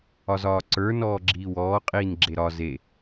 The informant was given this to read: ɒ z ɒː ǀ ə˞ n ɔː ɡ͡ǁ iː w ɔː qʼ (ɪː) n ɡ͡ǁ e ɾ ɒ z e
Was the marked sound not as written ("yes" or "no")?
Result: yes